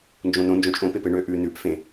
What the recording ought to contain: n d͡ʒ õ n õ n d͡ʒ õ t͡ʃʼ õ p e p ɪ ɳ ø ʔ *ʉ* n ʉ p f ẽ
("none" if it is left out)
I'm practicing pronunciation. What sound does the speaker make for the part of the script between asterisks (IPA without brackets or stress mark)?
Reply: ʉ